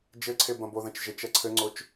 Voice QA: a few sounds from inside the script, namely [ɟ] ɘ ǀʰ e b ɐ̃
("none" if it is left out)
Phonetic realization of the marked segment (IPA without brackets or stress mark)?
d͡ʒ